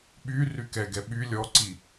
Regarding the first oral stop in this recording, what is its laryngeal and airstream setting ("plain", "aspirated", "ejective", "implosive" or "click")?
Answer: implosive